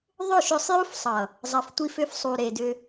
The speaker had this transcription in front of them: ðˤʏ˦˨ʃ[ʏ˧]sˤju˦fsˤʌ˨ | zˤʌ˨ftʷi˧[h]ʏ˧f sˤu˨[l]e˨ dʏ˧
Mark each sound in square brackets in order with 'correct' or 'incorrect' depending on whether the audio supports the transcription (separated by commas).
correct, incorrect, incorrect